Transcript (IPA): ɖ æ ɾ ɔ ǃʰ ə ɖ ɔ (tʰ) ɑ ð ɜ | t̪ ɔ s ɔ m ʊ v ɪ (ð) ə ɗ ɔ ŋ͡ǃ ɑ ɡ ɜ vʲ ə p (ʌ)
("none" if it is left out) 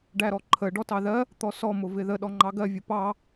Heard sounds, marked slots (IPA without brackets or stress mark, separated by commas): t, ð, ɑ